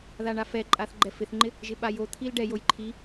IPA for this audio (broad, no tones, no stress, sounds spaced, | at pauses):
ð a ɳ a f ɛ ǃʼ a θ ɡ͡ǃ ɛ f ɪ θ ŋ͡ǃ ɪ | ʒ ɪ ɓ a j o t̪ʰ i l ɖ ɛ j o j ǃʰ i